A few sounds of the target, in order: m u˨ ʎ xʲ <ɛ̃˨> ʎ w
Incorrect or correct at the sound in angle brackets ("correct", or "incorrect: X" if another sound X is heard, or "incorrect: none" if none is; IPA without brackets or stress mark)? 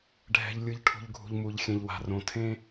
correct